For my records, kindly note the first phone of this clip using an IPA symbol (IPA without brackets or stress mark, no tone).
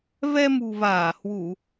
v